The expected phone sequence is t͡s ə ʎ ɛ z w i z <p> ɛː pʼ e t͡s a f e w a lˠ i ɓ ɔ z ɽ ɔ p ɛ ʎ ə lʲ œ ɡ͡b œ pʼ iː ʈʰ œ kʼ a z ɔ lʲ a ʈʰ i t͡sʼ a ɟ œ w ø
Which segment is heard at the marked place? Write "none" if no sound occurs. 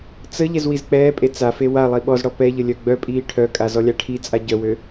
k͡p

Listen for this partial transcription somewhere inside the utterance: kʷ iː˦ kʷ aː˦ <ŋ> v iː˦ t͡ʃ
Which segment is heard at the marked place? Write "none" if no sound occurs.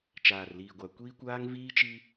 ŋ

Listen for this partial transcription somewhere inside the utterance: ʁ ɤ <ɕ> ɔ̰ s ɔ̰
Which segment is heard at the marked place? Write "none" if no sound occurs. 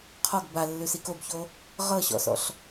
ɕ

